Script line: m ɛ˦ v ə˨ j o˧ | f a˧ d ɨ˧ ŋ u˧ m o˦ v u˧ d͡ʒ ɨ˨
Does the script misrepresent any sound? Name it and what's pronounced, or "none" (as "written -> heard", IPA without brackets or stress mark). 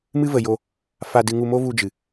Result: ɛ˦ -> ɨ˦